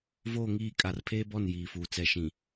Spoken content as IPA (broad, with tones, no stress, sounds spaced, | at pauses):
v oː˦˨ ŋ iː˦˨ kʼ a˨ r pʰ eː˦ b ɔ˦˨ n j iː˨ f uː˨ t͡s ɛ˨ ʃ ĩ˨